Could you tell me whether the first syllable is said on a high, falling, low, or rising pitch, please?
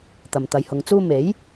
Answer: low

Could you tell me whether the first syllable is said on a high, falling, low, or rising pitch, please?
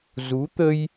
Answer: rising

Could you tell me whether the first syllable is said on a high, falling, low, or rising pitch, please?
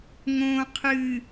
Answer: low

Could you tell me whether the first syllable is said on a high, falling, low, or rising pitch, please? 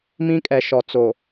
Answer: high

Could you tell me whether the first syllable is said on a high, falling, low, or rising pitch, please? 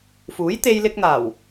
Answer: rising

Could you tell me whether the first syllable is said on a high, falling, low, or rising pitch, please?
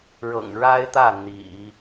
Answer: low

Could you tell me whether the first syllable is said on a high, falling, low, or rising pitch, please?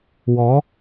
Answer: rising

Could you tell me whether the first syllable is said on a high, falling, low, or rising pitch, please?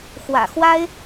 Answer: low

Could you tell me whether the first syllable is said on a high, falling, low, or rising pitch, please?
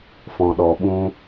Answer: low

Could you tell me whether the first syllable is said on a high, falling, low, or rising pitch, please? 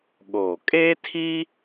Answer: low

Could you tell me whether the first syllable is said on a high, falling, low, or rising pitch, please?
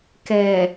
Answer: low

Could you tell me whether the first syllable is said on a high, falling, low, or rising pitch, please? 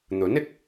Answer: rising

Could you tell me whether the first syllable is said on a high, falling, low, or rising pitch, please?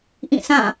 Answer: falling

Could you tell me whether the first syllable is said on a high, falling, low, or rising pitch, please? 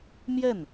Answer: falling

